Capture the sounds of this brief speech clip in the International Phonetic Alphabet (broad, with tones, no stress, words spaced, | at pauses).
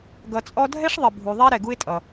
ɡʌ˨t͡sʼɔ˦ dʱɛ˥ʂðˤɪ˩ bʱu˩ðˤɛ˦ ɾɛ˩ɡu˦ɪ̯tʼʌ˩